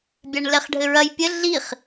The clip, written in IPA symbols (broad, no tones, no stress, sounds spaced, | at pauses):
bʲ a ɳ l ɛ χ ɖʱ ɘ ɹ ɐ j pʲ ɘ ɮ i χ